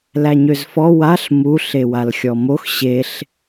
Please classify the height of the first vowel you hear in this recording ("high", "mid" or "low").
low